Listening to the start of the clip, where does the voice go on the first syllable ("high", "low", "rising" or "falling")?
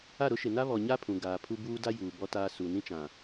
falling